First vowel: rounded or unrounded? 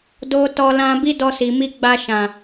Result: rounded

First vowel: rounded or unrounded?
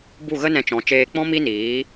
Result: rounded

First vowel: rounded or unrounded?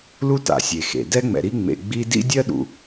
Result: rounded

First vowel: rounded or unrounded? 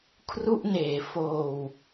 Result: rounded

